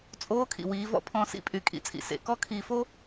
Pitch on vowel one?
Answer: rising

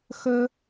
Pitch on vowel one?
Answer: high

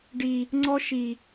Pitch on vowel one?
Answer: low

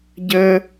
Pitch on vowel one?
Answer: high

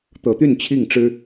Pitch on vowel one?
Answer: rising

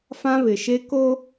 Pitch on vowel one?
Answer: high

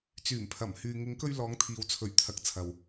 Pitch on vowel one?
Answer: low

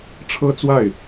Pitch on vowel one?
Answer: high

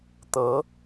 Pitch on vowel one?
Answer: rising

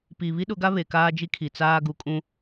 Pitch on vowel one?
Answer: low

